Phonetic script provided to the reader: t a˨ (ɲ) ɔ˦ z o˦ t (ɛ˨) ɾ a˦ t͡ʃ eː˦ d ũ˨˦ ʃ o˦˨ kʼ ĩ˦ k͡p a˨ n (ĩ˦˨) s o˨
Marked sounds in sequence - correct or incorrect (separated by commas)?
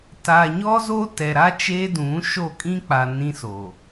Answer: correct, correct, incorrect